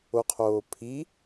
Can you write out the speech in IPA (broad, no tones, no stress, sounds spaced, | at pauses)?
o qʰ oː pʰ i